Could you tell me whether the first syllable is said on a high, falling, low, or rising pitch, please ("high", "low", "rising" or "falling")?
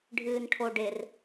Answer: low